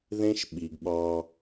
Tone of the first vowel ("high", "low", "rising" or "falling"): high